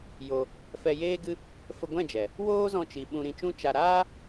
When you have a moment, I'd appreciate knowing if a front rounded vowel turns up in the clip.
no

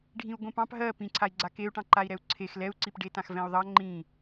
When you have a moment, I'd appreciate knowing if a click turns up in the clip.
yes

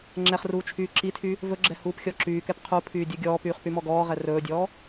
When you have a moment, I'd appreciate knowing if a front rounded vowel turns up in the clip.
yes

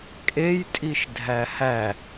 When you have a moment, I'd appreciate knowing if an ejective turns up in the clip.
yes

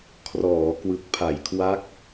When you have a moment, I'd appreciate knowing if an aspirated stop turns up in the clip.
yes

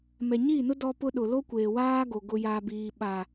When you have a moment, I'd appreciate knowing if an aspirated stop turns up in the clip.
no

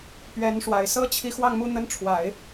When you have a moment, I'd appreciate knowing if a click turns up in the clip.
no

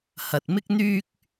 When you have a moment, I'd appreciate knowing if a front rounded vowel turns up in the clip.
yes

